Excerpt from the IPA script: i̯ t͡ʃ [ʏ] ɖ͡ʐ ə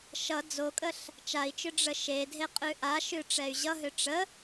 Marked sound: correct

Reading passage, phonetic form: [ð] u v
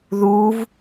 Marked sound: correct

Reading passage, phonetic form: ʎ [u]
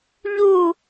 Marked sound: correct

